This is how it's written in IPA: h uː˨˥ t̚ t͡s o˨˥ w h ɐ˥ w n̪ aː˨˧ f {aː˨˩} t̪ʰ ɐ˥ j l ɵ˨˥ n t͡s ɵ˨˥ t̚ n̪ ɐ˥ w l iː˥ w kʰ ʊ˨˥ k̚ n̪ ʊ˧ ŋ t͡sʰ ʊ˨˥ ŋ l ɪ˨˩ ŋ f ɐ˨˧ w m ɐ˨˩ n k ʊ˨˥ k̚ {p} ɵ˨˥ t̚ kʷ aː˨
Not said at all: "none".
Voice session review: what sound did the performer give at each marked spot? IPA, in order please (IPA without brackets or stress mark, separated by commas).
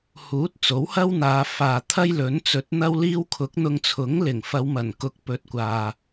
aː˨, p